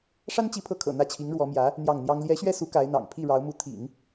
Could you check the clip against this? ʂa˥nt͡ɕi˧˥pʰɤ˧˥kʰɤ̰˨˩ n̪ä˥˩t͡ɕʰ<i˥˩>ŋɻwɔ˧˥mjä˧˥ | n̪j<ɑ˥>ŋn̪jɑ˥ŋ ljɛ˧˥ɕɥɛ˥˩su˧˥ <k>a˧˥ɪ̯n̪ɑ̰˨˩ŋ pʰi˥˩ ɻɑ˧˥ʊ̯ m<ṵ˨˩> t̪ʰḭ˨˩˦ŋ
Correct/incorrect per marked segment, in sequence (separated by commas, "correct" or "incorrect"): incorrect, incorrect, correct, incorrect